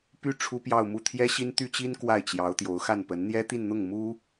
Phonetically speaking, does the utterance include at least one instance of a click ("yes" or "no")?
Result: no